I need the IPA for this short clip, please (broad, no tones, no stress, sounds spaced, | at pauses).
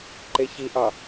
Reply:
ǃ e ç i ʔ ɑ